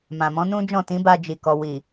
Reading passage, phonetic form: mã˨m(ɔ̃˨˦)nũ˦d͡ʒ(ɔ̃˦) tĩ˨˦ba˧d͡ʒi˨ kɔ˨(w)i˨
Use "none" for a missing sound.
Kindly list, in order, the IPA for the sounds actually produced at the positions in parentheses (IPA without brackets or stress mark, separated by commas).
ɔ̃˨˦, ɔ̃˦˨, w